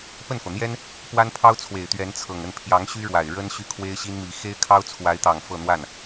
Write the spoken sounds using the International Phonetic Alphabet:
p ə˥˩ n f ɤ˩ n̪ j ɛ˥ n | p w a˥ n pʰ ɑ˥ ʊ̯ t͡sʰ w e˨˩ ɪ̯ t̪ ɥ ɛ˧˥ n t͡sʰ ɤ˨˩ ŋ ə˥˩ n pʰ j ɑ˧˥ ŋ ɕ y˥ ɻ w a˨˩ ɪ̯ ɻ ə˥ n ɕ y˥˩ kʰ w e˥ ɪ̯ ɕ i˥ n m i˧˥ x e˥ ɪ̯ kʰ ɑ˥ ʊ̯ t͡sʰ w a˧˥ ɪ̯ t̪ ɑ˨˩ ŋ f ɤ˥˧ n̪ w a˥˩ n

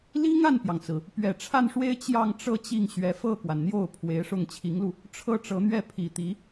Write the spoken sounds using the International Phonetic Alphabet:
l i˥ ŋ a˥˩ n p j ɑ˩ ŋ t͡s ɹ̩˩ | p ɥ ɛ˨˩ ʈ͡ʂʰ a˥˩ n ʂ w e˥ ɪ̯ t͡ɕ j ɑ˥˧ ŋ ʈ͡ʂ ɤ˥˧ t͡ɕ i˥˩ ŋ ɕ ɥ ɛ˧˥ f ɤ˥˩ k w a˩ n n̪ j o˥˩ ʊ̯ pʰ w e˧˥ ɪ̯ ʂ ʊ˥˩ ŋ t͡ɕʰ i˧˥ ŋ l u˧ | ʈ͡ʂʰ ɤ˥˩ ʈ͡ʂ ɤ˧˥ n̪ ɥ ɛ˥˩ pʰ i˨˩ t̪ i˧˥

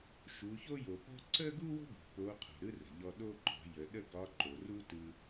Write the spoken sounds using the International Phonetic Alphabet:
ʃ u˩˧ ç o˥ j o˩ p ɔ̤˥ ǀ ə˥ ɡ u˥ w o̤˥ b ṳ˩ p o˧˥ qʰ o̤˩ ɾ ɯ˥ r ə̤˩ ʎ ɔ˧ ɗ o˥ ǃ ɔ̤˩˧ j ə˩˧ ɗ ə˥ ɡ ɒ˧˥ ǃ o˩ r u˥ t ɯ˧

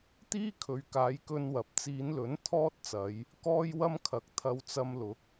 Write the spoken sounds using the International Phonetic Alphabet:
t̪ iː˥ kʰ ɵ˨ ɥ k aː˨˧ j k ɵ˥ n w ɐ˨˥ p̚ t͡s iː˨˧ n l ɵ˨˥ n t̪ʰ ɔː˥ t̚ t͡s ɐ˨˧ j | k ɔː˥ j w ɐ˥ m kʰ ɐ˨ k̚ t̪ʰ ɐ˧ w t͡s ɐ˧ m l ʊ˨˥ k̚

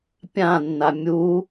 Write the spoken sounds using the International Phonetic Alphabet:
pʲ ã nː a mʲ u

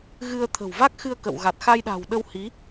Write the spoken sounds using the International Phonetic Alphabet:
ɣ ɨ˧ ə̯ t̪ʰ ə̤˨˩ w v a˦˥ k̚ x ɨ˧ ə̯ k ə̰˧˨ w ɣ a˨˩ t̚ x a˧ j ɗ a̤˨˩ w ɗ ə˧ w h i˨˦

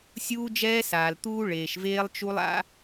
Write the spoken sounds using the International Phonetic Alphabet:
sʲ uː˦ d͡ʒ ɛː˦ s aː˨ l t̪ uː˦ ɭ eː˨ ʃ v eː˦ lˠ t͡ʃ u˦ lˠ a̰˦

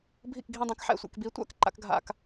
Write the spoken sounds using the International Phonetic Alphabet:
bʱ ḭ˥˧ k ɡʱ ĩ˥˧ dˤ ã˧˥ k ħ ɛ̰˥˧ sʷ ḛ˥˧ k b i˧˥ tʷ a̰˥ k ǃ a̰˧˥ k ɡʱ a̰˥˧ k

